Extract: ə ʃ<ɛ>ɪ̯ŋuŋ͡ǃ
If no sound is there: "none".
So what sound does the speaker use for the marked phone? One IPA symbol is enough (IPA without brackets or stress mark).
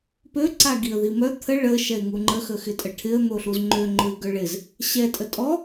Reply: ɛ